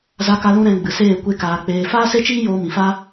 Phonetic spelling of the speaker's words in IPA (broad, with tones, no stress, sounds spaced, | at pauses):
z a˧ k a˧ l ũ˧ ɾ ɛ̃˧ ɡ͡b ɨ˨ s eː˦˨ kʷ e˦ k aː˧ k͡p eː˧ f aː˦ s e˦ t͡ʃ iː˦ j oː˧ m ĩ˨ f a˦